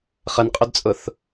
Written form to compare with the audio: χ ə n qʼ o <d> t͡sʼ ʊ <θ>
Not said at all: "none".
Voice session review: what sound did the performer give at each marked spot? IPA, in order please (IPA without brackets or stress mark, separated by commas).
d, θ